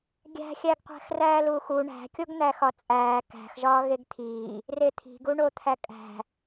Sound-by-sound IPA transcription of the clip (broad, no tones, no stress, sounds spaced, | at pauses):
ɡʲ æ̤ xʲ æ ɡ qʷ æ̤ x r æː l uː x u ɳ æ̤ kʲ o ɡ n̪ æ x ɒ t͡sʼ æː k æ̤ x ʒ ɒː ɣ e ɡ t̪ʰ iː | r e t̪ʰ i̤ ɡ u ɳ o t̪ʰ æ kʼ æ̤